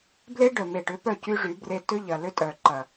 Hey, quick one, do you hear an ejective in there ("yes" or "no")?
yes